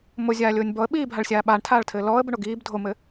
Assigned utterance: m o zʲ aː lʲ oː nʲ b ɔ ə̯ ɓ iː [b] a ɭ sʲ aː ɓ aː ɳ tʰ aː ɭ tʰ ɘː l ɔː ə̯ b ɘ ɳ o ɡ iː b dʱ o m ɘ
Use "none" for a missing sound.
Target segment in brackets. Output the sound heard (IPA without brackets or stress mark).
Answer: bʱ